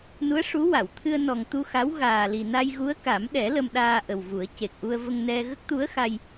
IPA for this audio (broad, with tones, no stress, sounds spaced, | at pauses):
n u˧˥ ə̯ ʂ u˧˥ w a˨˩˨ w t̪ʰ ɨ˧ ə̯ n ɔ˨˩ ŋ t̪ u˧ x a˧˥ w ɣ aː˨˩ l i˨˩ n a˧ j ɣ u˧˥ ə̯ k a˨˩˦ m ɗ ɛ˨˩˦ l ə˧ m ɗ aː˧ ʔ ə˨˩ w v u˨˩˦ ə̯ c e˨˩ k̚ ʔ u˧ ə̯ v ə˧ ŋ n ɛ˧ ɣ ə˦˥ k̚ t̪ u˧˥ ə̯ x a˧ j